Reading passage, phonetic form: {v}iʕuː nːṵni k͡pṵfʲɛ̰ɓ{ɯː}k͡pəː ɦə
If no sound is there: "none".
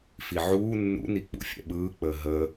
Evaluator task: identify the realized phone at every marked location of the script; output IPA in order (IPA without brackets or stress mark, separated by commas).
f, ɯː